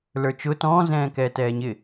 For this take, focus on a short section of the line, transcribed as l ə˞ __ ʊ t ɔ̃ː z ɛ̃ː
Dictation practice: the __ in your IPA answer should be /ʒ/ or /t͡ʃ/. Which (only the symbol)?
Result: t͡ʃ